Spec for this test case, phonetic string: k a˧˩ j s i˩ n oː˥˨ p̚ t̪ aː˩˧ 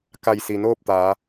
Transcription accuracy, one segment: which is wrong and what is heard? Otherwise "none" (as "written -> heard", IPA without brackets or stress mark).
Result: none